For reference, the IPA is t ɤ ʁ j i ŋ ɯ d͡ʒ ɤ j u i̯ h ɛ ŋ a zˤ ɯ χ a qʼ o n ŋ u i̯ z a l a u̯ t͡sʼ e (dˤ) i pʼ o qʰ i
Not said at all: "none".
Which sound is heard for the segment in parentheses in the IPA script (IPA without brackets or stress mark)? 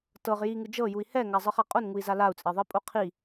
ðˤ